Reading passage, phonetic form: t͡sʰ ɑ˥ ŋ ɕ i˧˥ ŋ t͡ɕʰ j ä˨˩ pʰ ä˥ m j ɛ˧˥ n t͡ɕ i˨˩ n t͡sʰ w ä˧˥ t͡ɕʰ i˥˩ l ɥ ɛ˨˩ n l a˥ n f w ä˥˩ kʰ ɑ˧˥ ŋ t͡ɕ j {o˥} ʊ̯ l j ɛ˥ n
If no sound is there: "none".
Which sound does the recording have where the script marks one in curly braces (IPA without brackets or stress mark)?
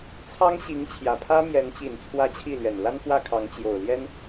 o˨˩